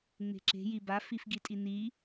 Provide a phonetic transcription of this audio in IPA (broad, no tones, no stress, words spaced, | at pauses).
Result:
ŋ͡me̤ǁe̤ jiba fifɡitʼini